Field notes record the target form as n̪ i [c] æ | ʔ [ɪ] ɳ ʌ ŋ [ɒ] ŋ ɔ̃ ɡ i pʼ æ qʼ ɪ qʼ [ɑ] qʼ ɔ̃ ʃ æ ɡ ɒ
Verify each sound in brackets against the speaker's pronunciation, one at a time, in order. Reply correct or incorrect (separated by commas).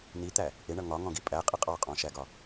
incorrect, correct, correct, correct